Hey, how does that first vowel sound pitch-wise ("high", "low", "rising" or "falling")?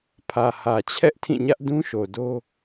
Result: low